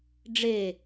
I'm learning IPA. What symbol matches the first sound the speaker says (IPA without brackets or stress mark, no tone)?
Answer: ɖ͡ʐ